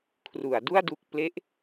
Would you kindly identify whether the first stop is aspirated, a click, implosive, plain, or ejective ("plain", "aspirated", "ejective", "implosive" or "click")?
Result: aspirated